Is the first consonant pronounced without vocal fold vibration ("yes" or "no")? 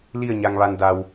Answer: no